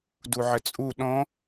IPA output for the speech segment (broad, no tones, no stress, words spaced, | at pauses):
duʕət͡sʼu ɗɔ̃